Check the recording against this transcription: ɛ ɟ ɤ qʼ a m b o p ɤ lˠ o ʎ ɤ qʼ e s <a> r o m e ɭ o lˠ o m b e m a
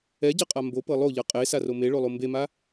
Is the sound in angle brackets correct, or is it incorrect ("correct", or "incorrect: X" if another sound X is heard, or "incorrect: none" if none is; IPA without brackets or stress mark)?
correct